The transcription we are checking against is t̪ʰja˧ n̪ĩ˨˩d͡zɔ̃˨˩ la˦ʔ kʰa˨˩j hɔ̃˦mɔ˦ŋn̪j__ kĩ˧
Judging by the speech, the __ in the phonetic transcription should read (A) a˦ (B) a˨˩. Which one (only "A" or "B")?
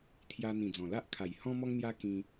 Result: A